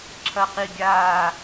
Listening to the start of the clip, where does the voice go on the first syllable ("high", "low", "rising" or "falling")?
falling